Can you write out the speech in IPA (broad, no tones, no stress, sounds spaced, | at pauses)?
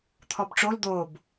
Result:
t̪ʰ ɔ b ʈ͡ʂ o l d̪ o b